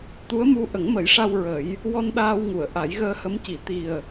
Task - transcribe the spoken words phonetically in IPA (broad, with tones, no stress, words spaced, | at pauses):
t̪u˧˥ə̯mu˧ ʔə˨˩˦ŋmə˨˩˦jʂa˧w ɹə˨˩˦j | wɔ˧n ɗaː˧wŋu˨˩˨ə̯ ʔa˨˩˦jɣəː˧hə˧˥mci˨˩˦ t̪i˨˩ə̯